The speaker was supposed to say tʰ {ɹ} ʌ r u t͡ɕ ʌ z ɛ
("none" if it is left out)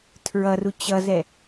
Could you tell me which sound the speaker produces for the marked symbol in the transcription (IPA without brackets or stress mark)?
ɹ